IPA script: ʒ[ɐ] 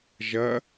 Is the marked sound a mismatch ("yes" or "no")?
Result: no